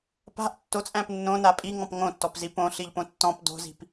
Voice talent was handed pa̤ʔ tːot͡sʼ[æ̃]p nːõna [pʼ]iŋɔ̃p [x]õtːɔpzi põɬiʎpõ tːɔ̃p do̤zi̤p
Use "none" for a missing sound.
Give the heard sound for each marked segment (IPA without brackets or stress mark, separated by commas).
æ̃, pʼ, ŋ